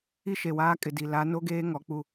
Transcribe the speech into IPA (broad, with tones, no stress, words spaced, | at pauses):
i˦ʃe˨waː˦ kʼɪ˨di˨ la˨˦no˦ɡeː˦ ŋɔ˨˦k͡pu˦